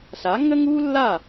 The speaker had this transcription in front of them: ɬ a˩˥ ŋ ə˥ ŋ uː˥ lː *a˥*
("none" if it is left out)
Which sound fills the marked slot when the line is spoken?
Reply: a˥˩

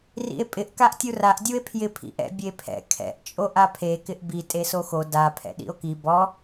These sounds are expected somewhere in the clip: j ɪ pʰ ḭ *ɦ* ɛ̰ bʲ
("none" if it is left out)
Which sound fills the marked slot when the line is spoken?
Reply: ʔ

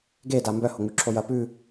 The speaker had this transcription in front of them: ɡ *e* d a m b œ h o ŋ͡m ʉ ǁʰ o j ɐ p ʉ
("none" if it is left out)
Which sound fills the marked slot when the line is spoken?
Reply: e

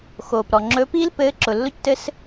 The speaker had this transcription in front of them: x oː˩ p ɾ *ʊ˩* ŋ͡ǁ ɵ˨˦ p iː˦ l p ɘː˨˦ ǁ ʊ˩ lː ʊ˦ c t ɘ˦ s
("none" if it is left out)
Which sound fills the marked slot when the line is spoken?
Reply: ɔ˩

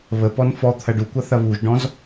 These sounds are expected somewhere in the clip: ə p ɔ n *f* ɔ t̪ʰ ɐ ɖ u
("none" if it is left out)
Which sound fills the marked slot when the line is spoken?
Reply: f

